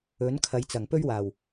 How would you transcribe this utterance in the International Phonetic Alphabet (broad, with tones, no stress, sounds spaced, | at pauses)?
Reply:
ɵ˨˥ n kʰ ɐ˨˧ j t͡s ɐ˨˩ ŋ p ɵ˥ ɥ w aː˨˩ w